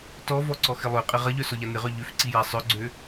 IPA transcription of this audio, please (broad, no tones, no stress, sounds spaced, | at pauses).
t ɔ v ɔ ǀ ɔ x ɪ lˠ ø qʼ ɪ ʁ ɐ ʎ œ s ɔ ʎ a n ɪ ʁ œ ʎ ø f ǀ i j a sˤ œ ɡ͡ǀ ø